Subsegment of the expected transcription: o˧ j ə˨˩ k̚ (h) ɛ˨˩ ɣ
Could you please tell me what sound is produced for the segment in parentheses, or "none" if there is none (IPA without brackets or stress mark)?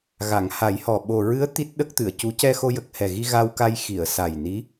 h